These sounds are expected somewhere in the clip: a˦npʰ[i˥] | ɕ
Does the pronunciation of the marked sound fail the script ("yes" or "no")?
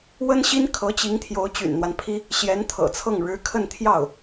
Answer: no